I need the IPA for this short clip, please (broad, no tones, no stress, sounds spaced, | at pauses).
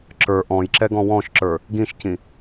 ǁ ə˞ ʔ ɔ̃ j ǁ ɛ ɡ ɔ̃ w ɔ̃ ʃ ǁ ə˞ | ɡ ĩ ʃ c ĩ